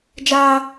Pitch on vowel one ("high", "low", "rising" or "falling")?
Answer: high